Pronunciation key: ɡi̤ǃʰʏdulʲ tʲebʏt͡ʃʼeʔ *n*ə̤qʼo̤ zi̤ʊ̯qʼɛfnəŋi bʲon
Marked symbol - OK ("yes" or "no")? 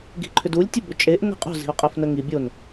yes